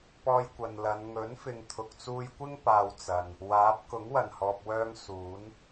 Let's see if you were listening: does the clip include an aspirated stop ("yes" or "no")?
yes